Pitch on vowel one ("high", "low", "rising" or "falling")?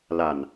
low